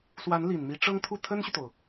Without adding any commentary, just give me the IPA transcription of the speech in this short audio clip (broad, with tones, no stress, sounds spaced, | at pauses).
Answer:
s w a˧˥ n l i˨˩ n m i˧˥ ʈ͡ʂ ɤ˥ ŋ t̪ʰ u˥˩ t̪ʰ ə˥ n ɕ y˨ t̪ o˩ ʊ̯